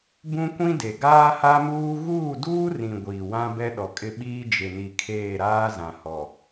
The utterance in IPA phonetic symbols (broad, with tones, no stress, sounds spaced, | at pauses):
b ũ˦ kʷ ĩ˦ d e˨ ɡ aː˦ h a˦ m uː˦ ɣ uː˦˨ d uː˦ r ĩ˨ ɡʷ iː˨ w ã˦ b ɛ˦ ɗ ɔ˨ kʼ ɪ˦ ɓ iː˦ d͡ʒ ɪ˨ n i˨ kʰ eː˦˨ ɾ aː˦ z ã˨ h ɔ˨